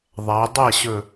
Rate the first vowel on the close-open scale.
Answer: open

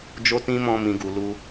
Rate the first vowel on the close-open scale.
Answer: mid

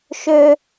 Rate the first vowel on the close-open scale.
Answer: mid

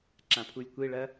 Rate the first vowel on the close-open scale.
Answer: open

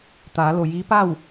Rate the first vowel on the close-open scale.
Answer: open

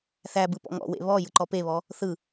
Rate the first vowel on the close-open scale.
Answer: open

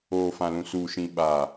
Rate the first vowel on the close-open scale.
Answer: mid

